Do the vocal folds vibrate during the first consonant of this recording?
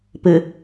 no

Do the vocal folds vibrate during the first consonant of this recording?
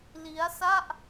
yes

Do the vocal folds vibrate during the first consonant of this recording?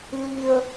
yes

